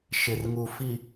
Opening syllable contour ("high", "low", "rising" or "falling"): low